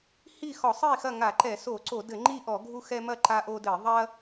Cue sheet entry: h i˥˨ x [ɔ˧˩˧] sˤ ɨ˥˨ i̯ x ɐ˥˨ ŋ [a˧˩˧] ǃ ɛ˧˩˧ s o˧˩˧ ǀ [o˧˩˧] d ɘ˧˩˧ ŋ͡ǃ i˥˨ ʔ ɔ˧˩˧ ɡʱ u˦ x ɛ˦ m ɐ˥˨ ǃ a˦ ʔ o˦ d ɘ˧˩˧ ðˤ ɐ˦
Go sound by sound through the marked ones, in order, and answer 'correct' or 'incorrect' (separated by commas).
correct, correct, correct